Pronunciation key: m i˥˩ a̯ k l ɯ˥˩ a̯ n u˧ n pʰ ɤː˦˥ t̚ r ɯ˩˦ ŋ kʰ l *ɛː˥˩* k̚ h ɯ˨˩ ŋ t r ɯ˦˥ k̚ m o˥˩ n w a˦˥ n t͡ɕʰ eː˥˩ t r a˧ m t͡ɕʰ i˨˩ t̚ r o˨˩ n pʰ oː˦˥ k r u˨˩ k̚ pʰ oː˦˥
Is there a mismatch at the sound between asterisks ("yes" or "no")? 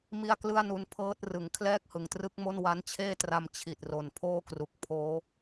no